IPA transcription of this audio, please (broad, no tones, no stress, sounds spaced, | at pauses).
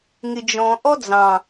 ŋ ɪ d͡ʒ ɔ̃ ʔ ɔ d͡z ɑ̃